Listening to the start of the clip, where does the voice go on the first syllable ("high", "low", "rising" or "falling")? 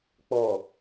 low